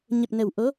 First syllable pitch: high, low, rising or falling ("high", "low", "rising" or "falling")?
low